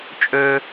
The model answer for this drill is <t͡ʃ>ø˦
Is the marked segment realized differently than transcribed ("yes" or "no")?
yes